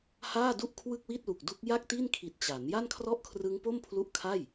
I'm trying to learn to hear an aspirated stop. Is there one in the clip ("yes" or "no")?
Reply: yes